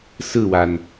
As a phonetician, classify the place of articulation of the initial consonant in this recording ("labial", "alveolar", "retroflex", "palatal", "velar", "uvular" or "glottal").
alveolar